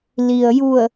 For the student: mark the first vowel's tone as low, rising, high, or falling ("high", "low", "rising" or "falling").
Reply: low